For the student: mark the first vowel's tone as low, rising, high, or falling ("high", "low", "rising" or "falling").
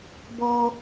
high